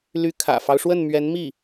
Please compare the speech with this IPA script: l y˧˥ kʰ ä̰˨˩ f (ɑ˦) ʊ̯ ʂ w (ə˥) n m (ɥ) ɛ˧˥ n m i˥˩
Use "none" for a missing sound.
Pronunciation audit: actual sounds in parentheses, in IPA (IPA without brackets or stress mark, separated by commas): ɑ˦, ə˥˩, ɥ